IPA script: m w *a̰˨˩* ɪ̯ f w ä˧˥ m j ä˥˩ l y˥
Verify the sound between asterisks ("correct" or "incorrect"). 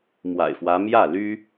correct